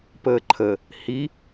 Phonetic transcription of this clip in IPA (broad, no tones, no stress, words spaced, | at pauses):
pəːǃʰə | hi